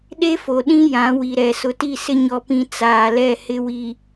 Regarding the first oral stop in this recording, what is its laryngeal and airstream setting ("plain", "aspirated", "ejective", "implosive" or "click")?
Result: implosive